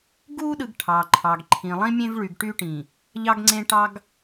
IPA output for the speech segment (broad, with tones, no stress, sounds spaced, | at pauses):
ɡ u˦ ɗ ɯ˨ ɡ ʈʰ ɑ˨ ǃʰ ɑ˨ ɡ ǃʰ ĩ˨ lˠ ĩ˦ mʲ ẽ˦ v ɭ y˨ ɡ ʈ y˦ ʈ ĩ˨ | ʎ ɑ˦ ɡ ŋ͡ǀ ẽ˦ ʈ ɑ˦ ɡ